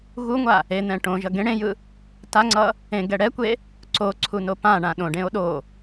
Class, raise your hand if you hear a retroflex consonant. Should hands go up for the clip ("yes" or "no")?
yes